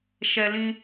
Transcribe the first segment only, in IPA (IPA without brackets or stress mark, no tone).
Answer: ʃ